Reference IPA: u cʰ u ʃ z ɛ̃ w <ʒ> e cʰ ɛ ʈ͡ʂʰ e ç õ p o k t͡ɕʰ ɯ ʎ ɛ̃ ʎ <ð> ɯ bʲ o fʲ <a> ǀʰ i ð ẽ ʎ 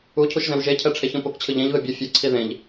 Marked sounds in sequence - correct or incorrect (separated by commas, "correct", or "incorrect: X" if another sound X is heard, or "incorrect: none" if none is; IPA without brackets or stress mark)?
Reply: correct, correct, incorrect: ʌ